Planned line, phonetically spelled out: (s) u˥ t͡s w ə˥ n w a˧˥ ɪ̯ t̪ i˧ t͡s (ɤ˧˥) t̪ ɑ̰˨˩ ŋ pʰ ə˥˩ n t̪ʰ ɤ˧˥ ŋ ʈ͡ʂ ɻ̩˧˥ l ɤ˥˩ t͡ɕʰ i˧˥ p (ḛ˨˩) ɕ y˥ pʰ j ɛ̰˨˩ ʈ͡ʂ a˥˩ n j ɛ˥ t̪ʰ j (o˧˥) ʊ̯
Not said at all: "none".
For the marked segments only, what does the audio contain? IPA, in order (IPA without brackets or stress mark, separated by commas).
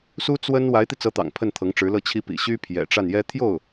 s, ɤ˧˥, ḭ˨˩, o˥˩